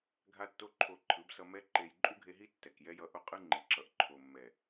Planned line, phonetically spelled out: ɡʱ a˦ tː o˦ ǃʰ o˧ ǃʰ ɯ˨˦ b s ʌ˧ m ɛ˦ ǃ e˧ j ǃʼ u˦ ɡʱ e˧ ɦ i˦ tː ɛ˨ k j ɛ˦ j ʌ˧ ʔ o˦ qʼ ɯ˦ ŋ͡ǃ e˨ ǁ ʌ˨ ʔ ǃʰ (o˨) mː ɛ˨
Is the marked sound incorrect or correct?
correct